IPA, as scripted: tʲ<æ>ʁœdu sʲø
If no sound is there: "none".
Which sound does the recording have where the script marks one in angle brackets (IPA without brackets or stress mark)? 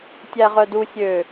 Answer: æ